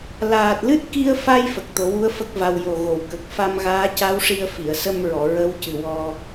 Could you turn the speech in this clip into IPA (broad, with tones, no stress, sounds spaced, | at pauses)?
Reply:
l aː˨˩ t̚ l ɨ˦˥ t̚ k i˧ ə̯ f a˧ j f ə˨˩ k̚ t̪ o˨˩˦ w u˧˥ ə̯ f ə˦˥ k̚ v a˧ w j o˨˩ ɣ o˨˩˨ w k ə˨˩ k̚ f a˧ m ɣ aː˧˥ c a˧˥ w ʂ i˧ ə̯ f i˨˩˨ ə̯ s ə˧ m ɹ ɔ˨˩˨ ɹ ə˧˥ w c ɨ˨˩ w ɔ˧